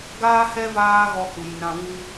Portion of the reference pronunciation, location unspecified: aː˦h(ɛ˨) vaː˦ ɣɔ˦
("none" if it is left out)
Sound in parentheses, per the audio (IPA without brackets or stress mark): ɛ˦